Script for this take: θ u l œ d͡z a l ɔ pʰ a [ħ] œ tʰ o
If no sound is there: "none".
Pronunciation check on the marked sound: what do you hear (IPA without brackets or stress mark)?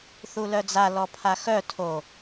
x